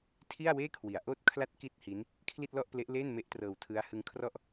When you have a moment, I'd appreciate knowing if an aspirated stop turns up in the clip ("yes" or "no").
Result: yes